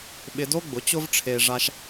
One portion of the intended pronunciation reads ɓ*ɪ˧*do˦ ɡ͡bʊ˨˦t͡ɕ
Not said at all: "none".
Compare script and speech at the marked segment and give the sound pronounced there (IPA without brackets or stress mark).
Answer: ɪ˧